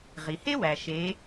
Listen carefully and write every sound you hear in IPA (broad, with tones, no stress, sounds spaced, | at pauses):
ʁ i˩ h e˥ w æ˩ ʃ e˩˧